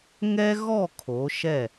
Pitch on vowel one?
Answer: high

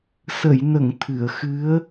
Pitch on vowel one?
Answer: low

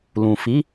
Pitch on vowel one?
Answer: low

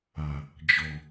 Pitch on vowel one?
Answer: low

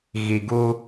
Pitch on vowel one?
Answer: low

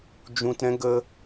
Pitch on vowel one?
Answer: low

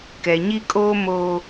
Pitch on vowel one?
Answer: low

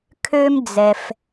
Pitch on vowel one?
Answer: high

